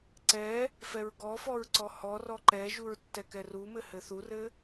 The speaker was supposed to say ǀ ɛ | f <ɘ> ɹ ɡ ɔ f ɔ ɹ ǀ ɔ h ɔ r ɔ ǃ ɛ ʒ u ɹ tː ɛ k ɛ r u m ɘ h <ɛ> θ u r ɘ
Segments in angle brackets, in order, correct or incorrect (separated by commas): incorrect, incorrect